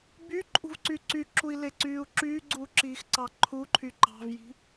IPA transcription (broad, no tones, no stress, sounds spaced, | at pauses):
b y ǃʼ ṳ v ǀ y ǀ y ǁ u i̯ l e ǀ yː u̯ ǁ yː ɡ͡ǀ uː ǁ iː x ǀ ɑ ǃʰ u ǃʰ y ǃ ɑ̤ v j i̤